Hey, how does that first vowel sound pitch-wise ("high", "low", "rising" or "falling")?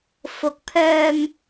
rising